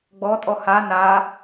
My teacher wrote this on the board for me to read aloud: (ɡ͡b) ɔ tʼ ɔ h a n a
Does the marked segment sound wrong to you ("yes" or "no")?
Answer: no